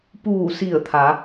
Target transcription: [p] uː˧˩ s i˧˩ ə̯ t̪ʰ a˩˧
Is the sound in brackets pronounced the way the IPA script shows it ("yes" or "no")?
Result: yes